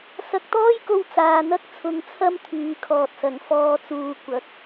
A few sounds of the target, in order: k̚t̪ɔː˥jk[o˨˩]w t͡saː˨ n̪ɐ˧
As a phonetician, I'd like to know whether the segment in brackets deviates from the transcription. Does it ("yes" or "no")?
yes